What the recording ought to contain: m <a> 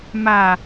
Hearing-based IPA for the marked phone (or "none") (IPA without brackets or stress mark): a